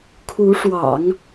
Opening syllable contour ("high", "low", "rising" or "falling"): rising